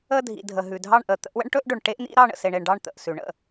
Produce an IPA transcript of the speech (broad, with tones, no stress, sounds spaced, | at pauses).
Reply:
ə˥˧ dʱ ḭ˨ dʱ ə˨ ɦ ʉ˨ dʱ ɑ˥˧ ɳ ʔ ə˨ t̪ ə̰˥˧ ʔ w ə̰˥ ɳ ʈ ɵ˥ ʔ ɖ ɵ˨ ɳ ʈ e˥ ʔ n̪ ḭ˥ ɾ ɑ˥˧ ɳ ə̰˨ s e˨ ɳ e˨ ɳ ɖ ɑ˥˧ ɳ t̪ ə̰˨ ʔ s ʉ˨ ɳ ə̰˥˧